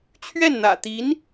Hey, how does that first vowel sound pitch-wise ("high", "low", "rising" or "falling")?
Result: falling